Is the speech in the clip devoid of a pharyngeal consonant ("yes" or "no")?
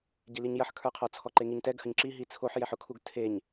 no